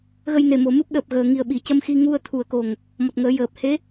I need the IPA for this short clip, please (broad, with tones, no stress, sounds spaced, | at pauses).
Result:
ɣ ə˧ j n e˨˩ m o˨˩ m ɨ˦˥ p̚ ɗ əː˨˩ p̚ ɣ əː˨˩ ŋ i˨˩ ə̯ ɓ i˨˩˨ c ə˧ m x i˧ ŋ u˧ ə̯ t̪ʰ u˨˩ ə̯ k o˨˩ ŋ | m ɔ˨˩ t̚ ŋ əː˨˩˦ j əː˨˩ p̚ h e˧˥